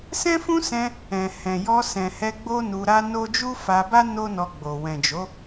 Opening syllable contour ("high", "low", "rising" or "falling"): high